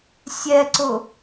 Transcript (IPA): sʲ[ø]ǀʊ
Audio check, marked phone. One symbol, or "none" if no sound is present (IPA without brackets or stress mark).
ɛ